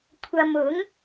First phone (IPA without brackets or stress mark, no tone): kʷʰ